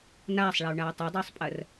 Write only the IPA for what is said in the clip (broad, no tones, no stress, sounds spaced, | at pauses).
n aː sˤ ɭ a u̯ ɳ aː tˤ ʊ dˤ ʏː sˤ pʼ ɜ r